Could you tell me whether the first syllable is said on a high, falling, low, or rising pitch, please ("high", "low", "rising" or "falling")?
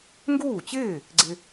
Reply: falling